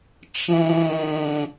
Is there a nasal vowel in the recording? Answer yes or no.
yes